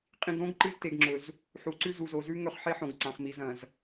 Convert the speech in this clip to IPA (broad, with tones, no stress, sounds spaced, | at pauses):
qʼ ĩ˨ ɡ ɾ õ˦ ɡ ǃ ɨ˦ z t e˨ ɡ ŋ͡ǁ ɵ˨ z | ħ u˨ ǀ ʉ˦ z u˨ z o˨ z ʉ˦ ŋ ɵ˦˨ χ ħ e˦ ħ õ˨ ɡ ǀ ã˨ χ m i˨ z ɐ̃˨ z